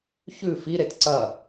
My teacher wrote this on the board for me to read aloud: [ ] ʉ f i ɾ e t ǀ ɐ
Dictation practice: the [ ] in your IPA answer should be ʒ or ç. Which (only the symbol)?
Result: ç